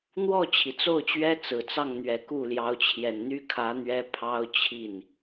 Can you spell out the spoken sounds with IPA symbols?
n̪ w ɔ˥˩ t͡ɕʰ i˩ t͡s o˥˩ ʊ̯ t͡ɕ ɥ ɛ˥ t͡s ɹ̩˨˩ t͡s ɑ˥˩ ŋ n̪ ɥ ɛ˨˩ k u˥˩ l j ɑ˧˥ ʊ̯ t͡ɕʰ j ɛ˨˩ n n̪ y˥ kʰ ä˧˥ n̪ ɥ ɛ˥ pʰ ɑ˥ ʊ̯ t͡ɕʰ i˥˩ n

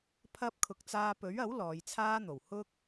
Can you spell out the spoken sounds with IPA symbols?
pʰ ɐ˧ p̚ kʰ ʊ˨ k̚ t͡s aː˧ p ɵ˨˥ ɥ ɐ˨˥ w l ɔː˨˧ j t͡sʰ aː˥ n̪ o˨˩ w h ʊ˥ k̚

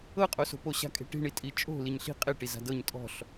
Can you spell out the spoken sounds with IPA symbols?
ɤ qʼ o s o̤ p o ɕ a̤ kʼ e̤ ʈ i̤ ɳ i tʼ i t͡ʃʼ o̤ l i ɲ ɬ i̤ qʼ e ʈ i z a̤ d ɤ ɲ tʼ ɔ̤ ɬ

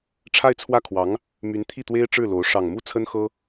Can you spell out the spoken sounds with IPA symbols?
ʈ͡ʂʰ a˥˧ ɪ̯ t͡sʰ w ä˥˩ kʰ w ɑ˧˥ ŋ | m y˧˥ n t̪ʰ i˥˩ t̪ w e˥ ɪ̯ ʈ͡ʂ ɻ̩˥˩ l o˧˥ ʊ̯ ʂ ɑ˨˩ ŋ m u˥˩ t͡sʰ ə˥ n x ɤ˥

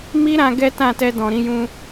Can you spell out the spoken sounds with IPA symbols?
m i˦ ɾ ã˧ ɡ ɛ˦ t ã˦˨ t ɛ˧ d ɔ̃˨ ɾ ĩ˧ j ũ˧

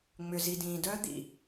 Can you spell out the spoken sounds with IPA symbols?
ŋ͡m ʏ˨ z i˨ d ĩː˨ d œ˦ d̪ ḭ˨

